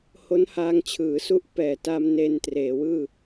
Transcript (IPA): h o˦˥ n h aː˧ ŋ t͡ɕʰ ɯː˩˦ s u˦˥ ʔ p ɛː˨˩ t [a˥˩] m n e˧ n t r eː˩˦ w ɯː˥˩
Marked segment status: incorrect: a˧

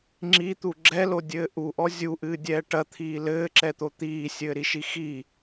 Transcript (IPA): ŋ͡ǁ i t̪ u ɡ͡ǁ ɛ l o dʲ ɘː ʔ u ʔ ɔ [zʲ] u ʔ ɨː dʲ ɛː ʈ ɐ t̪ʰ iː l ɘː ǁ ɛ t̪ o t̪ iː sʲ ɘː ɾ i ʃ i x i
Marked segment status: correct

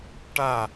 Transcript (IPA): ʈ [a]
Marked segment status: correct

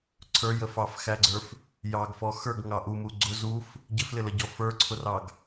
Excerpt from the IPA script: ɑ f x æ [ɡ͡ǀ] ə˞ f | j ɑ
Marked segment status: correct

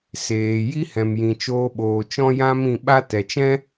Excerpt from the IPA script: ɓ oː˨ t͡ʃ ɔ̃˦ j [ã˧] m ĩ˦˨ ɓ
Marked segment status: incorrect: ã˦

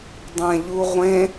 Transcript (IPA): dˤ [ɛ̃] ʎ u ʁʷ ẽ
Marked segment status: correct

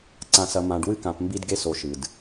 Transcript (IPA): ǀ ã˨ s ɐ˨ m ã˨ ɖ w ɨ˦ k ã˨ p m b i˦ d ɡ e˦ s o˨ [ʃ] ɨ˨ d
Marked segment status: correct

